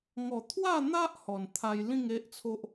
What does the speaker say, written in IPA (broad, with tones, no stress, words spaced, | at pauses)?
ŋɔ˨˩ t̪ʰwa˥˧n̪a˦ʔ hɔ˨˩nt̪ʰa˧j lĩ˥˧ŋe˦ʔt͡sʰo˦ʔ